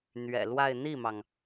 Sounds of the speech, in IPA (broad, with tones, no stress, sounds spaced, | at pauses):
n̪ ɥ ɛ̰˨˩ l w a˥˧ ɪ̯ n̪ i˥˩ m ɑ˩ ŋ